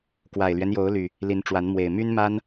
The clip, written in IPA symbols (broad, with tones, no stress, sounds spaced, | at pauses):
k w a˨˩ ɪ̯ l ɥ ɛ˦ n j o˨˦ ʊ̯ l y˨˩ | l i˨˦ n ʈ͡ʂ w a˨˦ n m w e˨˩ ɪ̯ m y˦ n m a˦ n